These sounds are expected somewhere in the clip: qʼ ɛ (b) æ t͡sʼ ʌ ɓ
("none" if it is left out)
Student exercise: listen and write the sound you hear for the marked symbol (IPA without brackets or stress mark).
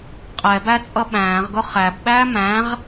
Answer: b